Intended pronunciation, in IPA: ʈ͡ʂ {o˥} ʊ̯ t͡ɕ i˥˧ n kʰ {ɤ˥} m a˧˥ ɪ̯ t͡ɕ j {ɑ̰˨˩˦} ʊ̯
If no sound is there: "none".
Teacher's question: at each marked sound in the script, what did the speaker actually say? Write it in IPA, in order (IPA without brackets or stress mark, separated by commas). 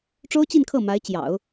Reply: o˥, ɤ˥˩, ɑ̰˨˩˦